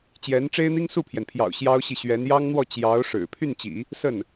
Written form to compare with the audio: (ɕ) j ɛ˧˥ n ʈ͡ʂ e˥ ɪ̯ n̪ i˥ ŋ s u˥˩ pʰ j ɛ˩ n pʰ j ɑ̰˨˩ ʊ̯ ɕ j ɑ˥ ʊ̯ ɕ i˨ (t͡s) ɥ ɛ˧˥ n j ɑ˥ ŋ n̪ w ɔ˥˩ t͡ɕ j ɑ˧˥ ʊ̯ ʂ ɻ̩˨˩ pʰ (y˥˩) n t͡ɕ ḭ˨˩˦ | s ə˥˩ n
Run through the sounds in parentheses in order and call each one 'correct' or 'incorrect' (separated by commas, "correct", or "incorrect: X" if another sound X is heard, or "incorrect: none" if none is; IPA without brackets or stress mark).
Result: incorrect: t͡ɕ, incorrect: ɕ, correct